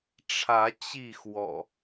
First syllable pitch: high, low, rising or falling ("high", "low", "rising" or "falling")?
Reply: rising